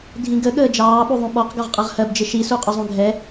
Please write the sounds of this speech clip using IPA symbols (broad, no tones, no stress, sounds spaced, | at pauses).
dʱ ĩ ɡ ə ɠ əː d͡ʒ ɑː ɓ u ðˤ ũ ɓ ɔ q ɡ ɔ ʁ qʼ ʌ ʁ h ɜ b d͡ʒ ɪ ʃ i s u qʼ ʊ zˤ ũ ɡʱ ɛ